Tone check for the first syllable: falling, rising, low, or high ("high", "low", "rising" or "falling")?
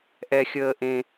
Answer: high